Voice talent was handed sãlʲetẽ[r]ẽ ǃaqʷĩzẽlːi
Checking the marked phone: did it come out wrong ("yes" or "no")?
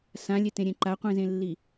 yes